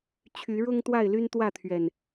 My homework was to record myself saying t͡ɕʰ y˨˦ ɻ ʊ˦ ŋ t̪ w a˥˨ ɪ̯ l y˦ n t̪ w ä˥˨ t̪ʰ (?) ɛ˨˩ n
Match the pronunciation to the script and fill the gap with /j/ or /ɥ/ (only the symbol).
ɥ